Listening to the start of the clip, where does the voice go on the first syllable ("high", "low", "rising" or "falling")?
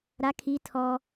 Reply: high